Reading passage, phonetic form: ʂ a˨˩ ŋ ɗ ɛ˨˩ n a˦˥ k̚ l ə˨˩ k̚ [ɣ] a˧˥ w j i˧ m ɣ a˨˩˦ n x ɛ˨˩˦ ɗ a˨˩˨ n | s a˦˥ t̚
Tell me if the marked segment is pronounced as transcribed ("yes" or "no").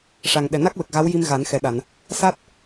yes